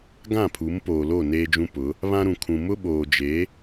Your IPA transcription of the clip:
ɡ ã˦˨ pʰ u˨˦ m p oː˨ l o˦˨ n eː˦ d͡ʒ ũ˦ p ʊ˨˦ | β ã˦ ɾ ũ˨ kʰ ũ˨ m ʊ˦ ɓ oː˨ d͡ʒ e˨˦

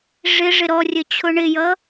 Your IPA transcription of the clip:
ʐ ɪ ʐ ɪ ɾ ɔ rʲ ə t͡ɕʰ ʊ ɳ ɪ j ʌ

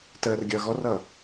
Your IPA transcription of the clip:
t əː r ɡʲ ʌː ɣ ɔ r ʌː

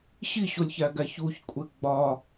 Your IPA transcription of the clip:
ɕ i ɕ o lʲ ç æ ɡ æ ç u ç kʷʼ e ɡ͡b ɒ

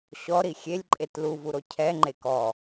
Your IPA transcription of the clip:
ɕ ɔ ɾ i xʲ e lʲ ǃʼ e t l u v u ɾ o cʰ ɛ ŋ͡ǃ e k ɔ

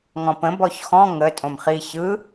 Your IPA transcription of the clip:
ŋ ɔ̃ p ə̃ b ɔ ç x ɔ̃ ŋ ə tʼ õ m χ i ç ɯ

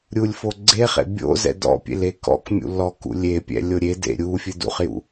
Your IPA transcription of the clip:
ɾʲ u lʲ f o ɡ͡ǀ e χ ḛ bʲ o̰ z ɛ̰ d ɔ̰ pʲ ḛ l e k ɔ̰ k mʲ ṵ l ɔ k ṵ lʲ e pʲ ɛ̰ lʲ o ɾʲ e d ḛ ɾʲ u fʲ ɨ d ṵ χ j ṵ

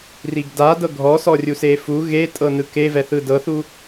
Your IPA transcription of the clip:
r i ɡ d a d ɤ ɡʱ ɔ s ɔ rʲ u s e f u ɣ e tʼ ɤ n ɯ k e v ɛ θ ɯ d ɤ θ u

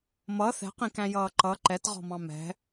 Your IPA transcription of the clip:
m ʌ θ ɛ̤ q ĩ k æ̃ j ʌː ǃ ʌ ǃ ɛ t ʁ ɔ̤ m ɑ̃ m ɛ̤

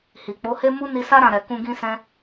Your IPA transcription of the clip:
h i˨ k͡p o˨˦ h e˦ m u˦ n i˧ s a˦ ɾ ã˦˨ ɾ ɛ˨ k ũ˧ ɡ ĩ˦ s ɛ̃˦

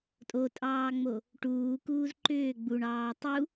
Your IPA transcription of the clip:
tʼ o tʼ ɑː ŋ͡m o | ʈ uː k uː z ǃ ʏː ɡ͡b u ɳ ɑː tˤ u

